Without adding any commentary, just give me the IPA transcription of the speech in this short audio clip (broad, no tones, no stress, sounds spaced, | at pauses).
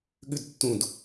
ɠ ʉ d tː ũ d